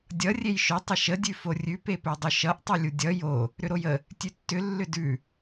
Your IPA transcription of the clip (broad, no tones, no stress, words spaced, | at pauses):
dʲʌ rʲejʃɵ tˤəʃə dʲʉforʲʉ pepɵdˤʏʃʌʔ tˤʌlʲudʲʌ jo | ɾʏɾojə | tʲʉtːʏ lːʏdʉ